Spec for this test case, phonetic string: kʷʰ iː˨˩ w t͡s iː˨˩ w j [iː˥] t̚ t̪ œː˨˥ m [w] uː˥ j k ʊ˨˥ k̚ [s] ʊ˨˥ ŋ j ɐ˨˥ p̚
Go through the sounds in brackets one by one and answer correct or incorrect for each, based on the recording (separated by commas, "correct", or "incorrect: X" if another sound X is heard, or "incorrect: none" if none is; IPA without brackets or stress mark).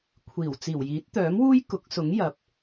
incorrect: iː˨˥, correct, correct